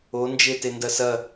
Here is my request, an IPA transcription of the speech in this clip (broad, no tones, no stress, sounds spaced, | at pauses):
o n d͡ʒ e t e n d ɐ s ɐ